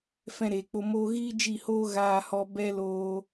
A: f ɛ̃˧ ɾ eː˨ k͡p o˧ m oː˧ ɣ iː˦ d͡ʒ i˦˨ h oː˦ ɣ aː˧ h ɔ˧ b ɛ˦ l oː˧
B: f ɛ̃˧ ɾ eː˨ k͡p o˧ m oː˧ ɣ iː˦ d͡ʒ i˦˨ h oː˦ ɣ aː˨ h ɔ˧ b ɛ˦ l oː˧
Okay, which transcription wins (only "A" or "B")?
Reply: A